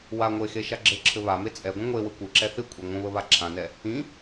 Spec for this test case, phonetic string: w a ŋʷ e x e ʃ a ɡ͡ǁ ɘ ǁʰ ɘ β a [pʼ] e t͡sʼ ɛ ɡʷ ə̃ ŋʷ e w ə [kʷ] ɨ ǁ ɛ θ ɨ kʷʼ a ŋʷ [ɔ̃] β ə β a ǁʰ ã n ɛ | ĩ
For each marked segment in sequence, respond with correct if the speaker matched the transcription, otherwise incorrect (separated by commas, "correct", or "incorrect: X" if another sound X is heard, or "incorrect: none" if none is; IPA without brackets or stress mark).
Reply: incorrect: m, correct, incorrect: ə̃